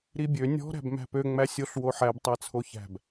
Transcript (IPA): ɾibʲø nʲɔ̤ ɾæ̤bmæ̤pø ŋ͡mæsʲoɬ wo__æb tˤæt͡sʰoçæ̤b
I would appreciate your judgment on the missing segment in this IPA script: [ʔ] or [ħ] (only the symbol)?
ħ